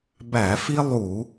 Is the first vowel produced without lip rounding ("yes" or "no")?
yes